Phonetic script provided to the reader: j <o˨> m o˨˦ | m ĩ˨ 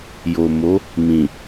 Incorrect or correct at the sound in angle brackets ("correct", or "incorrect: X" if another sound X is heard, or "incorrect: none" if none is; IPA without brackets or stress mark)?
correct